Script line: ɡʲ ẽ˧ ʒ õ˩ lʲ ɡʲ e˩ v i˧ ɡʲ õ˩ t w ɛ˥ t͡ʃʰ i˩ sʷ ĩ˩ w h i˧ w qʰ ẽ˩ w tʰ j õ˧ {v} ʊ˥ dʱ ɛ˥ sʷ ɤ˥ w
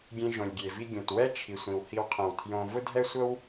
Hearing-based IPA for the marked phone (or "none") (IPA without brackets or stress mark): v